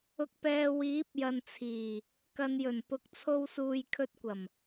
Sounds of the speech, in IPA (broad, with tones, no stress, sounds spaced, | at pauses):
ʊ˨ k̚ p ɛː˨ w iː˨˥ p̚ j ɐ˨ n t͡sʰ iː˨˩ | k ɐ˨ n j ɵ˨˩ n p ʊ˨˥ k̚ t͡sʰ o˧ w s uː˨ j kʰ ɵ˧ t̚ kʷ ɐ˨˩ m